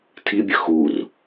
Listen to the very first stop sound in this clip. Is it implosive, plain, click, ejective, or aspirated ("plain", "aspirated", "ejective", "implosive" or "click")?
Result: aspirated